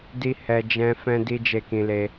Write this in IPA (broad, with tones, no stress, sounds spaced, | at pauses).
d i˧ h ɛ˧ d͡ʒ ɛ̃˦ f ɛ̃˧ d i˦ d͡ʒ e˦˨ k ĩ˧ l e˧